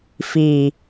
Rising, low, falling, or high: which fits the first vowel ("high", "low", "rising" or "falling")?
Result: low